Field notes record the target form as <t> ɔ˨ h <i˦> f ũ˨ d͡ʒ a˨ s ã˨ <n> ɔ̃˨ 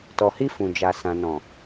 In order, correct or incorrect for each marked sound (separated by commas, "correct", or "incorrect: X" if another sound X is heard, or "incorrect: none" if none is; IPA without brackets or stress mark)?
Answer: correct, incorrect: i˧, correct